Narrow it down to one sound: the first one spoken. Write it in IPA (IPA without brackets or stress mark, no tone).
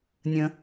nʲ